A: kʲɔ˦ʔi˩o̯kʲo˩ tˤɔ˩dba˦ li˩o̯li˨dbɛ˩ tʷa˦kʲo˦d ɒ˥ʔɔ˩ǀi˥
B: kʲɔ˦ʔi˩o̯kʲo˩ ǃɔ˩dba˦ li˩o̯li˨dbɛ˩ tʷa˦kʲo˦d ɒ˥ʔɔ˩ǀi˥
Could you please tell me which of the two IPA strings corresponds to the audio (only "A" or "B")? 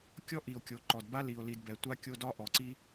B